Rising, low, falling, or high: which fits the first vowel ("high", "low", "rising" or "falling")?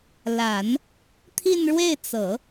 low